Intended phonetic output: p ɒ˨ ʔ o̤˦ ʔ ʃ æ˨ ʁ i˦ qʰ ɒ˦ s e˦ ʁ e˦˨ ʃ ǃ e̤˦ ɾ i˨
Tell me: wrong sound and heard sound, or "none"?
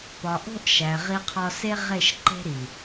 none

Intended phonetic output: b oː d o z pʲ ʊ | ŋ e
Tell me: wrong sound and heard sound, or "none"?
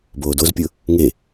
none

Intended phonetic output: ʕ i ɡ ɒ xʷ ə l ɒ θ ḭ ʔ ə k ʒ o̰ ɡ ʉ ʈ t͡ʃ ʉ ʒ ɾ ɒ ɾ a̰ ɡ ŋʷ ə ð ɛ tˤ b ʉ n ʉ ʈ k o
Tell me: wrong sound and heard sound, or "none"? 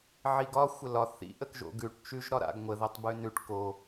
none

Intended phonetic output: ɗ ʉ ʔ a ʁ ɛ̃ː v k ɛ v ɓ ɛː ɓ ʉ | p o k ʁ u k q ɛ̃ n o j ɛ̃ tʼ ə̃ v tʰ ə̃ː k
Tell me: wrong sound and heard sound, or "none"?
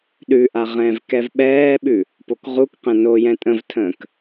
none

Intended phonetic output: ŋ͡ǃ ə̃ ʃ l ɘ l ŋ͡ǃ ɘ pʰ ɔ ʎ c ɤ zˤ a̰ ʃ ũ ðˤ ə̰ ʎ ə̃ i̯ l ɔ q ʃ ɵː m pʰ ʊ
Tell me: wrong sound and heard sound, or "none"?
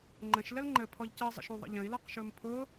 a̰ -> ə̰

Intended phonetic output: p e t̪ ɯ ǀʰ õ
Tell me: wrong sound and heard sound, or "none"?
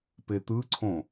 none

